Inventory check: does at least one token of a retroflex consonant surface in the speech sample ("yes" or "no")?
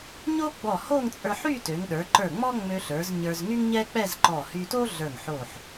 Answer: no